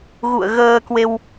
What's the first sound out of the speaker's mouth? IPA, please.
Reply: ɣ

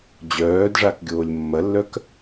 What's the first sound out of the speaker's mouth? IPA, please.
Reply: d͡ʑ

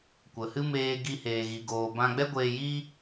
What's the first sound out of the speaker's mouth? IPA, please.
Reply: kʷ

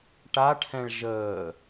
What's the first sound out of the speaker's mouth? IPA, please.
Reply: ʈ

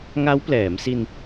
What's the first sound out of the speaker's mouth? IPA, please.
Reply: ŋ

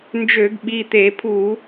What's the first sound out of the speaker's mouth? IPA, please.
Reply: n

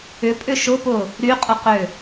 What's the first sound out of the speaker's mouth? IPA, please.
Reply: ʏ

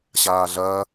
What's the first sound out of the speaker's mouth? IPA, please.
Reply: ɕ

